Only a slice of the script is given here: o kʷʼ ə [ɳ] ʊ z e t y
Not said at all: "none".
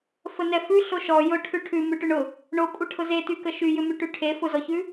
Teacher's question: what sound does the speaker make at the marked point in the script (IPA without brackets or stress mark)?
ʈʰ